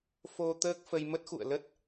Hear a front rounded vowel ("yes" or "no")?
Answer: no